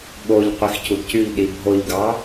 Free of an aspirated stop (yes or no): yes